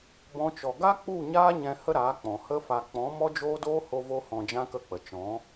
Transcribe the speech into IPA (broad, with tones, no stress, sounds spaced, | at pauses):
b ɔ̃˦ t͡ʃ ɔ˧ ɡ a˦ k͡p u˦˨ ɲ aː˦ ɲ ɛ̃˧ h ə˦ ɾ aː˨˦ k͡p ɔ̃˨ h ə˦ f a˧ k͡p ɔ̃˨˦ m ɔ˦ d͡ʒ oː˦ d oː˦ h o˦ v o˦ h ɔ̃˧ d͡ʒ ã˦ k ə˦˨ k͡p ə˨ t͡ʃ ɔ̃˨˦